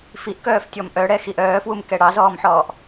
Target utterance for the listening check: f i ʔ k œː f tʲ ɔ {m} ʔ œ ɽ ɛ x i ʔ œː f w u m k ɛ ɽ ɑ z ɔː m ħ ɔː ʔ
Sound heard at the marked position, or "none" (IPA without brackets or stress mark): m